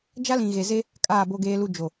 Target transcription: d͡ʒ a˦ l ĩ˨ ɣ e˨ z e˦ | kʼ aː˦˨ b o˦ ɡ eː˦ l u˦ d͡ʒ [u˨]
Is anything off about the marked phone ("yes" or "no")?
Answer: yes